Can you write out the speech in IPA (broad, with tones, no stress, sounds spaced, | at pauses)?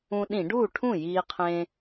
ũ˧ ɗ ĩ˧˩˧ ɖ uː˥˩ ʈʰ ũ˥˩ j iː˧ qʰ ẽ˧